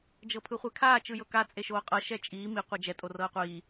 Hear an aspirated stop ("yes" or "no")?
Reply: yes